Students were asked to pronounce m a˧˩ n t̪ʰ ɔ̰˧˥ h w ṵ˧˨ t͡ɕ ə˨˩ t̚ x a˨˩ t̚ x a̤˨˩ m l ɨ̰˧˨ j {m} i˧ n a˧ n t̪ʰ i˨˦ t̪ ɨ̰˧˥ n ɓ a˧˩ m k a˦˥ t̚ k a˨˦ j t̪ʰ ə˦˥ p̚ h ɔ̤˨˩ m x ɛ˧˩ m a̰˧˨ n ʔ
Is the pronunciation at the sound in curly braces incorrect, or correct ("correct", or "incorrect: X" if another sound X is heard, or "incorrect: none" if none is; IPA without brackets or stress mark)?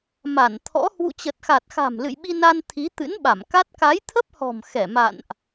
incorrect: ɓ